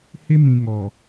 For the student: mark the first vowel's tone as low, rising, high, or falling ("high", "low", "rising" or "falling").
high